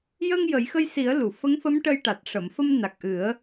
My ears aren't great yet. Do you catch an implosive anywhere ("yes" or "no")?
no